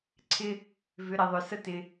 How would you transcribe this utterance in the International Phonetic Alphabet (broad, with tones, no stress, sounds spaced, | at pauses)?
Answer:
ǀʰ ɪ˦ | v ʏ˨˦ ɾ i˨ ðˤ ʏ˨ s ə˦ t ɪ˧